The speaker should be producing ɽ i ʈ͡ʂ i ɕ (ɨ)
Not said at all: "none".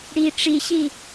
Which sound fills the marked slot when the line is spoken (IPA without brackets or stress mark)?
i